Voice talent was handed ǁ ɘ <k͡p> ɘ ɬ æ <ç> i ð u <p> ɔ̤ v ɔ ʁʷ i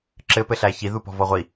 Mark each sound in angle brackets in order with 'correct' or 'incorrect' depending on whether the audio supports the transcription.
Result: incorrect, correct, correct

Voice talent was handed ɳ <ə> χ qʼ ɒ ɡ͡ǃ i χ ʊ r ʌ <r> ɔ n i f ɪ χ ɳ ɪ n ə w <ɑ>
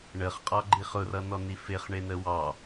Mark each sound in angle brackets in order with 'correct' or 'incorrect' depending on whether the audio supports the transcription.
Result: correct, incorrect, correct

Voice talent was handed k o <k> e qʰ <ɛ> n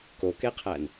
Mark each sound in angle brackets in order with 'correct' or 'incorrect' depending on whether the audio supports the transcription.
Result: correct, incorrect

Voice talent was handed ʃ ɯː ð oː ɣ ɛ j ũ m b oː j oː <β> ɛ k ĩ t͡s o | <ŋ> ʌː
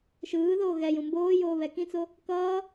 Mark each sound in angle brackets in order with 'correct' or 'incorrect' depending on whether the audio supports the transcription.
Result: correct, incorrect

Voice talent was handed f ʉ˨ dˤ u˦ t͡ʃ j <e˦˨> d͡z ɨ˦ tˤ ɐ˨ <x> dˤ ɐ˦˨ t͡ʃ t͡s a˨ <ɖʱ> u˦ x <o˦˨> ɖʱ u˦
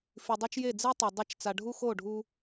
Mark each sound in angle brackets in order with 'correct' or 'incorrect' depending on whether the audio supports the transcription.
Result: correct, incorrect, correct, correct

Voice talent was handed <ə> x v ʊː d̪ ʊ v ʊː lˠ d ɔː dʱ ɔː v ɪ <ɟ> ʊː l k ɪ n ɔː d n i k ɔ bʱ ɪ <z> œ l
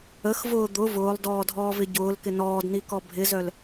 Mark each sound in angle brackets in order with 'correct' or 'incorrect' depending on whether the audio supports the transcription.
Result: correct, correct, correct

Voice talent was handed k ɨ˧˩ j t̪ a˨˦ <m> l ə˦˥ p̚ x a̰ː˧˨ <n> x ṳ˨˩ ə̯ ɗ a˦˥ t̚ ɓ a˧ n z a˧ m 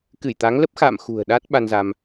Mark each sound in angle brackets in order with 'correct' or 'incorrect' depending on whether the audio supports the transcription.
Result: incorrect, incorrect

